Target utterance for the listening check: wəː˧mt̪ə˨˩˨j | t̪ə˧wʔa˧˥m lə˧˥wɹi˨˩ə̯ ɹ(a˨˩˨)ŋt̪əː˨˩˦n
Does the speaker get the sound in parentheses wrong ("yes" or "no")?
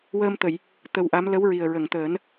yes